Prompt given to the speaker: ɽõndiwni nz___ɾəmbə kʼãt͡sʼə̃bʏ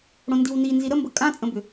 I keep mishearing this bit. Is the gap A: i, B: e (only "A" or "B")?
A